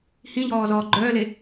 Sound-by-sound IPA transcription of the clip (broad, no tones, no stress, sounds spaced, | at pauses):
h ĩ ʎ ɔː z ɔː ɡ͡ǃ œː l e